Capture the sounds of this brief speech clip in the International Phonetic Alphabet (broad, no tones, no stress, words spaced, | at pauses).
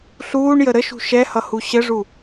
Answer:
ɬuːɳjə ɾəʃṳ ʃɛhʌhu ɕəʐu